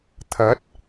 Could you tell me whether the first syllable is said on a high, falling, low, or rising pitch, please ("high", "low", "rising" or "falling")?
rising